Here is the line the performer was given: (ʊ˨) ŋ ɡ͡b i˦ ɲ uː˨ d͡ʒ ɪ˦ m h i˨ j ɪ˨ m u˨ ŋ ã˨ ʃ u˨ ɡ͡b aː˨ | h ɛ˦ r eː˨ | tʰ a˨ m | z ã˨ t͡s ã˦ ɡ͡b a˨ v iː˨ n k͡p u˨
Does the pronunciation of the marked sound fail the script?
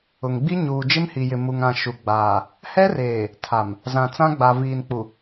no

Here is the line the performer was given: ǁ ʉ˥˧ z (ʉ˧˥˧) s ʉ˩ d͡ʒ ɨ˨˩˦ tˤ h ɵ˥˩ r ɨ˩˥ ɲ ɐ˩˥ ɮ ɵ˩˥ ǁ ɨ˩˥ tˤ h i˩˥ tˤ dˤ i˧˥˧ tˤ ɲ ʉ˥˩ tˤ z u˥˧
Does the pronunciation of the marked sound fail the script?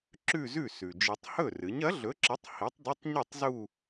yes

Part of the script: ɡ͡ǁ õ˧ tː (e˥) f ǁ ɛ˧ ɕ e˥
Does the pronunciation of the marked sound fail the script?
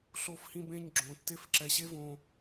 no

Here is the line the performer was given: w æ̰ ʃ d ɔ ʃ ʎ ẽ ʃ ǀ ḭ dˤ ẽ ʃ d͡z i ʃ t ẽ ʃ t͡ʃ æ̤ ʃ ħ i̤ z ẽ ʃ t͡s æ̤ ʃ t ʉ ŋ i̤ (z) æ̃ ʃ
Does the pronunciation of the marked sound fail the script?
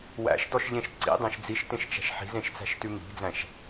yes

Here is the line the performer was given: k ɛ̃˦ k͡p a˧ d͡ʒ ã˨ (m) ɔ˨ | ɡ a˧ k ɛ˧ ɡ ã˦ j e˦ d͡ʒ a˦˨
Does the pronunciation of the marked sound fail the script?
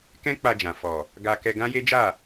yes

